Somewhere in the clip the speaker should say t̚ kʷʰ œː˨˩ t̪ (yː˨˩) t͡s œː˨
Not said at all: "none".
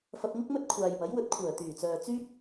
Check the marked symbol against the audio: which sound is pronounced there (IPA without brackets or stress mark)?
yː˨˩